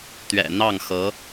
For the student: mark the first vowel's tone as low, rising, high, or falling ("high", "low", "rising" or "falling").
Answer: low